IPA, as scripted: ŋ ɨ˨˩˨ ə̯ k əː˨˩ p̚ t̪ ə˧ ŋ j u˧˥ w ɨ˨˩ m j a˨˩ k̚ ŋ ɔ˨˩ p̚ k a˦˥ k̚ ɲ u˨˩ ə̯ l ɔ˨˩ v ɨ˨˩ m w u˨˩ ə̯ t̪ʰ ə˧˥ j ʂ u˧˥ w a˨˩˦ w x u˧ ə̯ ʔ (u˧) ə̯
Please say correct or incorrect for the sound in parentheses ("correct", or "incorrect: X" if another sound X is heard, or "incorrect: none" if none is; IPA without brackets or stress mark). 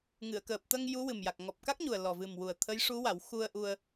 correct